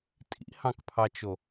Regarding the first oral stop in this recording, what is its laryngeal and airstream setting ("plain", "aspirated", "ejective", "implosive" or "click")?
ejective